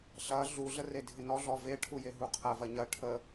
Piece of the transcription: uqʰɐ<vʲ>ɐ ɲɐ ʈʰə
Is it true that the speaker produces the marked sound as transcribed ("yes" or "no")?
no